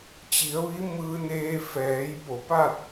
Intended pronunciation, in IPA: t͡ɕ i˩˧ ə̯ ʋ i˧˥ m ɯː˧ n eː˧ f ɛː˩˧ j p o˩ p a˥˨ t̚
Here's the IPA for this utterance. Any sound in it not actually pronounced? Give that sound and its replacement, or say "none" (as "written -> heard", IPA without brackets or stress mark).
none